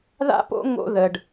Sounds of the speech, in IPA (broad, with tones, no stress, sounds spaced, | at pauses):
ð a̰˥ p o̰˥ ŋ o̰˥ ð ə˩ ɖ